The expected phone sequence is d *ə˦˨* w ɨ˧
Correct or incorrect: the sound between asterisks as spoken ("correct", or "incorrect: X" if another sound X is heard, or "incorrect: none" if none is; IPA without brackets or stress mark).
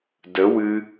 incorrect: ə˨˦